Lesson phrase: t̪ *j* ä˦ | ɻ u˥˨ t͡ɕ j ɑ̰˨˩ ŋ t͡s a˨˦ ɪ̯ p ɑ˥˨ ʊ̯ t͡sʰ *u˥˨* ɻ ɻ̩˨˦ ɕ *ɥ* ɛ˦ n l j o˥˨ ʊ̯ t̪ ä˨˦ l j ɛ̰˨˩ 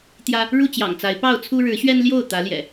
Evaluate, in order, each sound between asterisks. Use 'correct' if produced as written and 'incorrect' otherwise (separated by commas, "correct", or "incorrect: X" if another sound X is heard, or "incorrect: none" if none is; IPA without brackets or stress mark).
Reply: correct, incorrect: u˦, correct